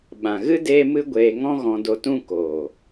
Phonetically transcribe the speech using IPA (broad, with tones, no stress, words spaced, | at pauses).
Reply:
ɓã˨ɣɨ˦ deː˦mɨ˦ɡʷeː˧ ŋɔ̃˦ ɣɔ̃˧do˧tũ˦ koː˨